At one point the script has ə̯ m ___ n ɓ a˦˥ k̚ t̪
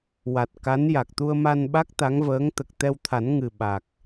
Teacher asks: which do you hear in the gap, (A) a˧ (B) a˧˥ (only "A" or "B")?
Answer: A